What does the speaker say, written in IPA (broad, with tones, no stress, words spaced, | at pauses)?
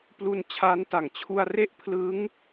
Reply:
plu˧nt͡ɕʰa˦˥nta˨˩ŋ t͡ɕʰu˧a̯re˥˩ʔ pʰlɯ˦˥ŋ